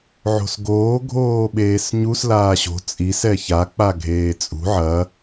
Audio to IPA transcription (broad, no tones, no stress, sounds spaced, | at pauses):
ʕ o̤ s ɡ oː ɡʱ oː ɓ eː s ɲ u s l aː ɕ o̤ t͡sʼ i s ɛ ç a k͡p a ɡʱ eː t͡sʼ ṳ ʕ ɐ